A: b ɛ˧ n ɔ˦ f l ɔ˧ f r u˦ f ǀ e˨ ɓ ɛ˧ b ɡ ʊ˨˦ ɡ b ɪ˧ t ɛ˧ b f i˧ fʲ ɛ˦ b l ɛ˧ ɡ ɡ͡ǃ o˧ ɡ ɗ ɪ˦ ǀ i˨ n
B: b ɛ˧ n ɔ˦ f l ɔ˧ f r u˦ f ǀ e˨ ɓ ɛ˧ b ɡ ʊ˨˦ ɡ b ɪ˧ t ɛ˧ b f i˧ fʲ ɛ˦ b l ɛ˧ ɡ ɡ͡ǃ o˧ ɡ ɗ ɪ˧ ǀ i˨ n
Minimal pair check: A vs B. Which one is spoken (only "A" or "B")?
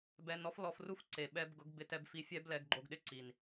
A